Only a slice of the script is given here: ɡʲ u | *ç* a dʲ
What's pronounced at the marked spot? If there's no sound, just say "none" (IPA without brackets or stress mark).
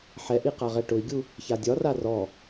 ç